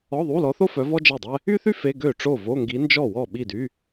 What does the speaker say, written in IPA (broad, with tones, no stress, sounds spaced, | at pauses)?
ɔ˧˥˧ ðˤ u˧˥˧ l ɔ˧˥ θ o˥ f œ˧˥ v ɔ˥ d͡ʒ ɛ˥˩ dˤ ɛ˥ | y˥ θ y˥ f e˧˥˧ ɡ ø˥˩ ʈ͡ʂ o˥˩ v o˧˥˧ ŋ ɡ i˧˥ n d͡ʒ ɔ˥˩ w ɔ˥˩ ɓ i˥˩ d y˧˥˧